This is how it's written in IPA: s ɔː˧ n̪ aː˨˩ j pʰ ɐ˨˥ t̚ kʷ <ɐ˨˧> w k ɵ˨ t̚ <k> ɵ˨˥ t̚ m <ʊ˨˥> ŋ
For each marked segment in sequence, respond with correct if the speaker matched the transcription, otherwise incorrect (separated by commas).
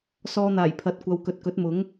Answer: correct, correct, correct